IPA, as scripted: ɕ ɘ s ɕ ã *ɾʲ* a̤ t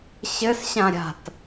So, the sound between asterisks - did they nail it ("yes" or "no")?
yes